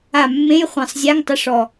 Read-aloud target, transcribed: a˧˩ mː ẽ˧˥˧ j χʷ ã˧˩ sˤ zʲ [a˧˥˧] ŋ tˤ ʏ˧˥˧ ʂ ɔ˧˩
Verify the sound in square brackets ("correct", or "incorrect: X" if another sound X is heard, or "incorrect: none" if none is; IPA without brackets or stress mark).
correct